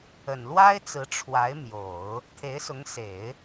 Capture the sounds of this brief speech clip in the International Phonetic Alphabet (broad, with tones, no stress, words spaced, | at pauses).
ə˨˩n lwa˥ɪ̯t͡sɹ̩˧˥ ʈ͡ʂʰwa˧˥ɪ̯mjo˨˩˦ʊ̯ | t̪ʰe˧˥ɪ̯sʊ˧˥ŋse˨˩˦ɪ̯